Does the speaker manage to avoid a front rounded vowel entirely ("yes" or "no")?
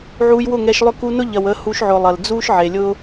no